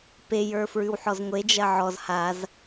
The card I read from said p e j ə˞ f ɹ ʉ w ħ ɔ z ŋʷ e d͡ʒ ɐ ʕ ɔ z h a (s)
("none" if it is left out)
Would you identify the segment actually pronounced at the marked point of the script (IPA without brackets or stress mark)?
z